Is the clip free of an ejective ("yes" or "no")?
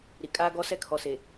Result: no